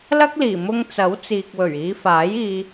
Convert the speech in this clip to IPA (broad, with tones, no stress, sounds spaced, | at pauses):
l ɐ˥ k̚ l iː˨˩ m ʊ˧ ŋ t͡s ɐ˨˥ w t͡s iː˨ k̚ w ɵ˨˩ ɥ iː˨˧ f aː˨˥ j iː˧